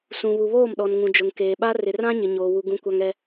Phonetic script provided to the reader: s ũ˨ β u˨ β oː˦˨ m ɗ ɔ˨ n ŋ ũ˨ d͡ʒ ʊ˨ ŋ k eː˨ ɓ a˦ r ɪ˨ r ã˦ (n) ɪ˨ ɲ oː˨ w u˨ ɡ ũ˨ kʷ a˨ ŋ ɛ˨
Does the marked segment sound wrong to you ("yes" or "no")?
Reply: yes